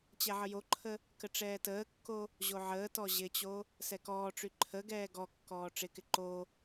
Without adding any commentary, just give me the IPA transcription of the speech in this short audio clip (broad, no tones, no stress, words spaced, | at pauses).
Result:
t͡ɕɛʕəjoǃʰə | kəʈ͡ʂɛːtəːkːo | ʑoʕəːtɔ ʑɪt͡ɕo | sɛkɔːʈ͡ʂy ǃʰəɡɛː ɡɔkːɔː ʈ͡ʂɪkɪ ǃo